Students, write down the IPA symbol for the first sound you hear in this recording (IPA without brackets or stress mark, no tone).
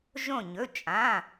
ʒ